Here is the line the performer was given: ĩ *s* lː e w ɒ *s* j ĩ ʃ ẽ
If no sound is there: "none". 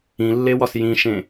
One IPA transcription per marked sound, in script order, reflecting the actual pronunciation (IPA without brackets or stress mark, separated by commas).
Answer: none, s